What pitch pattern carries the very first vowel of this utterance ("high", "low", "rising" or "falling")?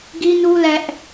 high